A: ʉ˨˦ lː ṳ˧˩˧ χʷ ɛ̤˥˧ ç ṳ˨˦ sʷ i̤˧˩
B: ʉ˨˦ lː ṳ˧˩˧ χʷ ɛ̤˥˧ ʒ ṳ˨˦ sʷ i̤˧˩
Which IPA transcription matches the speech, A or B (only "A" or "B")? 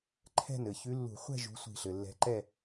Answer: B